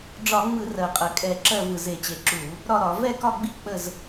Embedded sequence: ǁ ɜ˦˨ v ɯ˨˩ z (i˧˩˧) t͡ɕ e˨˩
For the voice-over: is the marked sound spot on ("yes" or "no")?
no